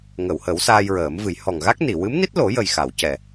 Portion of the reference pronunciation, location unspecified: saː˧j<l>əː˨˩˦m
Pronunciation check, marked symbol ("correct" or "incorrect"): incorrect